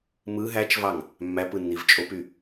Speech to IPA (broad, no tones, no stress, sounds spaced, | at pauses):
m ɯ ɦ æ t͡ʃ v ɑ ŋ | mː æ p ɯ nː i v t͡ʃʼ o p y